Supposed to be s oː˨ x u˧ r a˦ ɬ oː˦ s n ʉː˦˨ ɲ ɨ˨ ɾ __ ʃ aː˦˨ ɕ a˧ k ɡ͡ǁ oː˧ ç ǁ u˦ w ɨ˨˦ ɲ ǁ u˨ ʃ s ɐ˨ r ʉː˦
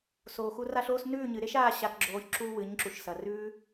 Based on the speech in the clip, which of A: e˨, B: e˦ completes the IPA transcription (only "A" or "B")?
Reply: B